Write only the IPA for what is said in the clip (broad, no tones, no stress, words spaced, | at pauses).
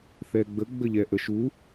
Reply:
θɛɡ͡bə ɡ͡bəʎɛʔəʃu